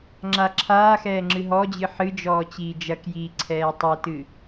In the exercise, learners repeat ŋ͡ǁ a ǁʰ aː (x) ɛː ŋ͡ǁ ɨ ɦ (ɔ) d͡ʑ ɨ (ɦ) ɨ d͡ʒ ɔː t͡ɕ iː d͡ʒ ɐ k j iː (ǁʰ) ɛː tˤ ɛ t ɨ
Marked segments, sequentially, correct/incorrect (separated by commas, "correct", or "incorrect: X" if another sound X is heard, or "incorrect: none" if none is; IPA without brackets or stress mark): correct, correct, incorrect: ħ, incorrect: ǀʰ